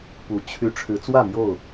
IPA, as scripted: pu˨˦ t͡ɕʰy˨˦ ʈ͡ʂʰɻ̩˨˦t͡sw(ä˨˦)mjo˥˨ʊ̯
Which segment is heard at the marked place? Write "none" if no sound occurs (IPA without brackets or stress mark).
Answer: ä˥˨